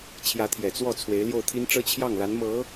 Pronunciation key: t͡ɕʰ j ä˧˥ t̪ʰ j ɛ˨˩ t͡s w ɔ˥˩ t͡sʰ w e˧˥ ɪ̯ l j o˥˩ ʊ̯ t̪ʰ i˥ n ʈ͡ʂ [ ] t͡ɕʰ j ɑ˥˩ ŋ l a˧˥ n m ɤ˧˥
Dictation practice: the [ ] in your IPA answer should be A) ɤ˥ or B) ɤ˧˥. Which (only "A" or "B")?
A